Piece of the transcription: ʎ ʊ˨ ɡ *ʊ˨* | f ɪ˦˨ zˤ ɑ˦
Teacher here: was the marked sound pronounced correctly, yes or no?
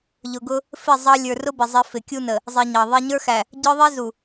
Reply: no